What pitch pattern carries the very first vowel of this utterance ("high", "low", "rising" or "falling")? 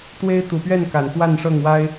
high